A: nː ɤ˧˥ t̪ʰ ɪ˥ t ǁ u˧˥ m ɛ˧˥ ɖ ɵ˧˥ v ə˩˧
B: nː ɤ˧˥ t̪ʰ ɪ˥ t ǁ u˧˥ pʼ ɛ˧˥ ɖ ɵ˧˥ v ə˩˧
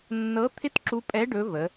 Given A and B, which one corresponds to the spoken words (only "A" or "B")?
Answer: B